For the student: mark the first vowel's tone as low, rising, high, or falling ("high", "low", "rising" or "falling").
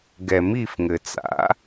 low